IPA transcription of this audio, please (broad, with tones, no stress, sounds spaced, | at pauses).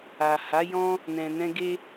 a˨ h a˨˦ j ɔ̃˦ | n ɛ̃˨ n ɛ̃˧ ɡ e˦